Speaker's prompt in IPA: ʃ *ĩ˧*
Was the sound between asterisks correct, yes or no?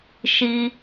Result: no